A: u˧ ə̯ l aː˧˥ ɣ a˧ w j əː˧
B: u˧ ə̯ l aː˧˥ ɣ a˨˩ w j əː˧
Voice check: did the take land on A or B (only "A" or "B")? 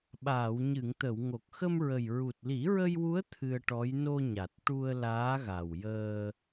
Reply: B